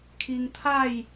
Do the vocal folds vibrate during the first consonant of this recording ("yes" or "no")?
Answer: no